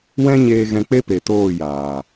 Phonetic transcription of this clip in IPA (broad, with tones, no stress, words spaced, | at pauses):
wɛ̃˦ɲeː˧ ɣɛ̃˧k͡pe˦pe˨ toː˦˨ jaː˨